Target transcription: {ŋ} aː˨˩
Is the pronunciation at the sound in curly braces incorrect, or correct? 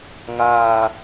correct